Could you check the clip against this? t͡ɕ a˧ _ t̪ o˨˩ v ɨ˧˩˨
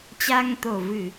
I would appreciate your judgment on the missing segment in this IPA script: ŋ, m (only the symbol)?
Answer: ŋ